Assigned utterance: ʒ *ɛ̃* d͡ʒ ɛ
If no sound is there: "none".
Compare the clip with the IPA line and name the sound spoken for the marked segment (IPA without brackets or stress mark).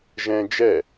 ɛ̃